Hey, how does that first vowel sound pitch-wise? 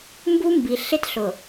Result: high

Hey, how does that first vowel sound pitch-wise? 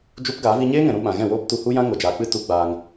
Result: high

